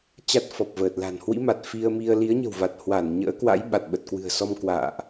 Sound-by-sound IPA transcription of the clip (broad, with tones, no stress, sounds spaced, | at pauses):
t͡ɕ a˦˥ t̚ f ɔ˨˩ p̚ v əː˨˩ t̚ l a̤˨˩ n h w ḭ˧˥ m a˨˩ t̚ f i˧ ə̯ m i˧ ə̯ l i˨˦ ə̯ ɲ ə̤˨˩ w v a˨˩ t̚ h w a˧˩ n ɲ ə̰ː˧˥ k w a̰˧˥ j ɓ a˨˩ t̚ ɓ ə˨˩ t̚ k w ɨ̤˨˩ ə̯ s ɔ˧ m k w a̰ː˧˨ ʔ